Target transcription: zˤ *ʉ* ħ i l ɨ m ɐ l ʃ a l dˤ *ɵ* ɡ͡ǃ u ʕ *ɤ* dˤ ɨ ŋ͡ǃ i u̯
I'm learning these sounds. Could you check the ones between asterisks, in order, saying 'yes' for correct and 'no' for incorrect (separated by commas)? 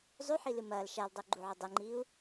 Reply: yes, yes, no